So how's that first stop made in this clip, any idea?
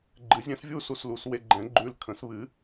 click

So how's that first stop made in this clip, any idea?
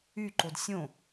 click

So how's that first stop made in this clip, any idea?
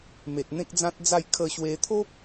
plain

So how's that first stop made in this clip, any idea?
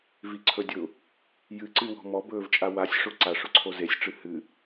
click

